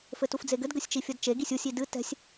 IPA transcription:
fɘtufd͡zeɡɘd ɡɘsʲt͡ʃifʲɐdt͡ʃe ɡisʲusʲ idɨ tɛ̤sʲ

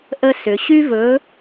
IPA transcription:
ʔə˥sʏ˩˧ ɕy˥vɵ˨˥

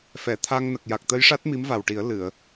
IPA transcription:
fɛ˨˩˨t̪ʰa˧ŋ nə˨˩k̚ja˨˩k̚t̪ə˧jʂa˦˥t̚ mi˧˥mva˨˩wʈi˨˩˦ə̯ lɨ˨˩˨ə̯

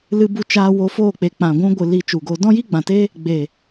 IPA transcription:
lɨ˧bu˧t͡ʃaː˧ wo˧foː˦˨k͡pe˨ k͡pã˨ ɡʷũ˧ɡʷɨ˨ li˧t͡ʃu˨ɡoː˧ dɔ̃˦jiː˦ɡ͡bã˨te˦ | ɡ͡be˨

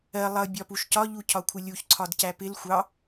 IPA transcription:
ɜ lˠʌ bʲɒpuʃcɒ ʎucʰɒkʷʰɪlʲuç ǀʰɒdcæpɪl xʷɑ

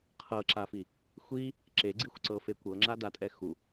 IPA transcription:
qʰɤǁafi | xʷi | ǁeɡ͡ǀixʷǀɤfe kʷɤŋ͡ǁadatʼɛ xu

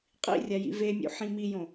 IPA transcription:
qʼḭrʲa jḭvemʲṵ ħĩmijõ

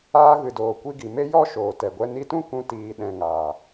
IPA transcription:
aː˧ɣɨ˨doː˨ kʷi˧ɡi˨me˦ jɔ˦ ʃoː˨tɛ˨ɡʷɛ˦ ni˧tũ˦ kũ˧ tiː˨ɗɛ̃˨ ŋaː˨

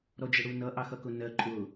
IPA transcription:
ɾɔd͡ʒɪɽunʌ ʔɑxʌkʊnɜ ǃʼʊ

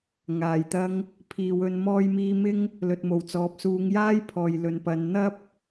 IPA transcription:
ŋaː˨˩jt̪ɐ˧ŋ | pʰiː˨wɵ˧n mɔː˧jmiː˧mɪ˥ŋ | lɵ˨t̚mo˨˩wt͡sɔː˨p̚ suː˨˧ŋ jaː˥jpʰɔː˨j lɵ˨npɐ˨˧n n̪ɐ˥p̚

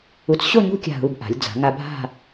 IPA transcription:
u˧t͡s ɕo˥˧ɲṳ˥˧kʲa̤˧˩ɦu˧˩b ʔa̤˩˧lʲd͡za̤˩˧ŋa˧ bʱa̤˥˧

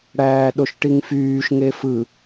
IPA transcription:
ɽæːɗoʃʈiŋfyːʃ ŋefɯ

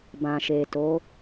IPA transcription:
bã˨ʃe˨to˨˦

